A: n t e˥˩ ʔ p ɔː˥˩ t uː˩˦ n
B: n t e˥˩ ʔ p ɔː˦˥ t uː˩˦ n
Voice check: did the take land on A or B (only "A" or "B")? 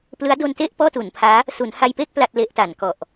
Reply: A